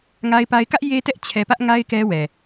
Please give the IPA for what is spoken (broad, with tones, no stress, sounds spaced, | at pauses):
ŋ a˦ ɪ̯ p a˦ ɪ̯ k ä˦ ʔ j e˦ t ɛ˦ ʔ t͡ɕʰ ɛ˦ p ä˦ ʔ ŋ a˦ ɪ̯ k ɛ˦ w ɛ˨